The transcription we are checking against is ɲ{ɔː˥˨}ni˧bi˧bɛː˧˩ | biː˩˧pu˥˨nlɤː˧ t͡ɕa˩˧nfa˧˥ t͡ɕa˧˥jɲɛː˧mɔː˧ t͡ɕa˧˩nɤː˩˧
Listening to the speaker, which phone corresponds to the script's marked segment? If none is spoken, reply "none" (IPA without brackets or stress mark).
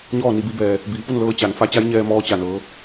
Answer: ɔː˥˨